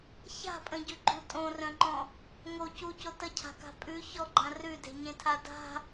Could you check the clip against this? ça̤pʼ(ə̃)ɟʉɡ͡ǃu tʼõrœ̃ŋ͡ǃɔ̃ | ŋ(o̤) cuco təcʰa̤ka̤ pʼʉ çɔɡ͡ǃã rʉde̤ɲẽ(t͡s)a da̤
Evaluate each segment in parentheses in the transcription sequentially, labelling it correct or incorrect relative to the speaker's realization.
correct, incorrect: o, incorrect: tʰ

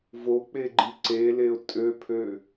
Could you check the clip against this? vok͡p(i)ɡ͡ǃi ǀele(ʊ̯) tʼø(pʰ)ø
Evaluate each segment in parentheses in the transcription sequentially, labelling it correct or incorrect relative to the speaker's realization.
incorrect: e, correct, correct

